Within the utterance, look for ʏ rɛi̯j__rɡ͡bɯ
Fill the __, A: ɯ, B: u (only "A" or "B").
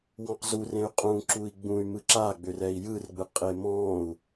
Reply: A